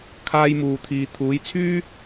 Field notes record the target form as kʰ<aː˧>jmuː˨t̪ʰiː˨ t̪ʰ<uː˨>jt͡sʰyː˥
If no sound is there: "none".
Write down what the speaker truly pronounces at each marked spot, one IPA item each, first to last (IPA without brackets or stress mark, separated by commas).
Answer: aː˧, uː˨˥